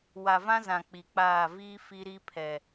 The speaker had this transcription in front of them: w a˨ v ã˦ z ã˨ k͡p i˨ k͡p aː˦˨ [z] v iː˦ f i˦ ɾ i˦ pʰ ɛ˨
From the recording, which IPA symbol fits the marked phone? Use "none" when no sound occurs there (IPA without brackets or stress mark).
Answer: none